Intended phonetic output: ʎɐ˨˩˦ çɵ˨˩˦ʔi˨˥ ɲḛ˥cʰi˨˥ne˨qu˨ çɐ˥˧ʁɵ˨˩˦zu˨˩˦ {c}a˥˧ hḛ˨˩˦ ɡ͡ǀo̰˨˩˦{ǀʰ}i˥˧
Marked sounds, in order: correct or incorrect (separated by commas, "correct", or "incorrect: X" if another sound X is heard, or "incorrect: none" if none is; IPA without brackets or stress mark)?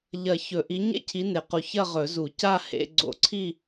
correct, correct